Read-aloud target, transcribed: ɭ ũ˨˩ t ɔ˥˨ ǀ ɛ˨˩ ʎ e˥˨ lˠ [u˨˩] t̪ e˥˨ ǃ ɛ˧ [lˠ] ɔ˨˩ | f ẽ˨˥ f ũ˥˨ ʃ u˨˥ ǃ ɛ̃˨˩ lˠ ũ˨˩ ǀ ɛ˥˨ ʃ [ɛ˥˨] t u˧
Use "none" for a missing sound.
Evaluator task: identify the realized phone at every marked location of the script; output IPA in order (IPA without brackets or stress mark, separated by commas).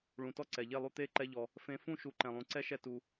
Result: u˥˨, ʎ, ɛ˥˨